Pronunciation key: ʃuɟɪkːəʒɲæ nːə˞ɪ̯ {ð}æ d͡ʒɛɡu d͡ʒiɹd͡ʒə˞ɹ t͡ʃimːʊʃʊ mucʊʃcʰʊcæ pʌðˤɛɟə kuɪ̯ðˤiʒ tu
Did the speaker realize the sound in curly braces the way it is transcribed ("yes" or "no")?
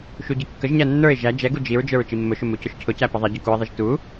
no